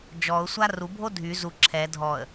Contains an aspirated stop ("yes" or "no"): yes